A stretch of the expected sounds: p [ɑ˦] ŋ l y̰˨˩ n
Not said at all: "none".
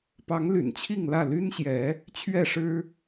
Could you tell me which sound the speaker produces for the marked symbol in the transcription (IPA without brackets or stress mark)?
ɑ˨˦